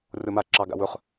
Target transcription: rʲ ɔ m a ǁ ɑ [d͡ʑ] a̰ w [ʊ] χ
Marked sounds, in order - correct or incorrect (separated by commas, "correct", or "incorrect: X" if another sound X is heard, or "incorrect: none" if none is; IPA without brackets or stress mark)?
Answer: incorrect: ɡ, incorrect: ɵ